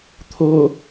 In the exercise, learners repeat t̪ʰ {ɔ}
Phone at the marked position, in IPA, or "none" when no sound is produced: o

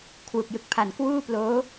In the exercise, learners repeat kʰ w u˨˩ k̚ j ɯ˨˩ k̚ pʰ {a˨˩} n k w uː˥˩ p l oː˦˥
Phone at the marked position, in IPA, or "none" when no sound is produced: a˨˩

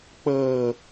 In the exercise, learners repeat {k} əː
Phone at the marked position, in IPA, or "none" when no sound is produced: k͡p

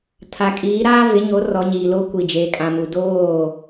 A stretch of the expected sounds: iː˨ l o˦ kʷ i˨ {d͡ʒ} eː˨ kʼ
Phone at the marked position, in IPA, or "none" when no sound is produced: d͡ʒ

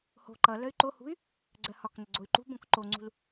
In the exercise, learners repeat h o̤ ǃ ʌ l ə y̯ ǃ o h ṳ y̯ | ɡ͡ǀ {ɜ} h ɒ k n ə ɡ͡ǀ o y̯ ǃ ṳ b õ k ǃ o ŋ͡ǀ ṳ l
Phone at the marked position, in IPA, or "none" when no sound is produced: ɜ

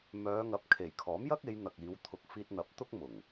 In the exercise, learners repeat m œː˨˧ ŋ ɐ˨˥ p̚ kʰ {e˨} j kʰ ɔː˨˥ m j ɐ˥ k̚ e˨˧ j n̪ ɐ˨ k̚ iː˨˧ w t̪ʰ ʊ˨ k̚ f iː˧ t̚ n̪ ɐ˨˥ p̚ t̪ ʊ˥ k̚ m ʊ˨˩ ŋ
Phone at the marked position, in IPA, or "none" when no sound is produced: e˨˩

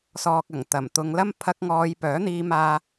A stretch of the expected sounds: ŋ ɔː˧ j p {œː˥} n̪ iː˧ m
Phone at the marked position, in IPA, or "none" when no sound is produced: œː˨˥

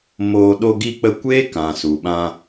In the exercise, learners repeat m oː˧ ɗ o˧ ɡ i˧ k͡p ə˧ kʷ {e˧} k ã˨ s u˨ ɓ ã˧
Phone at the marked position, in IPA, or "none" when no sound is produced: e˦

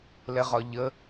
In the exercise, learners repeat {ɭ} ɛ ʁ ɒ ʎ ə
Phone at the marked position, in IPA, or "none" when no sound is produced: l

